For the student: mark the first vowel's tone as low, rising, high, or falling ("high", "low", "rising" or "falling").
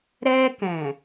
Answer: high